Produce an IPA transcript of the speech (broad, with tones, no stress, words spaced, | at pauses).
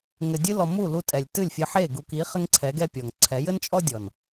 ŋɘ˨ dʲɨ˧lɔ˨ mu˦˨ lu˧tʼɛ˨lʲtɨ˦˨lʲ fʲɘ˧ħe˦˨ ɡu˨ki˨˦ χɘ˦ŋǀʰɛ˨˦ɡɛ˦ pʲɔ˨ŋ ǀʰɛ˨˦jɘ˦nt͡ʃʼɔ˦ dʲɔ˨n